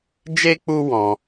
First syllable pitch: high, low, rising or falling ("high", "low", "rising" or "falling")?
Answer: high